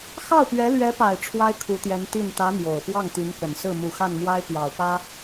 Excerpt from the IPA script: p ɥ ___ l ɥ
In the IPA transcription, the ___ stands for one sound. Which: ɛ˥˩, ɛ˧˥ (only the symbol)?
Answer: ɛ˧˥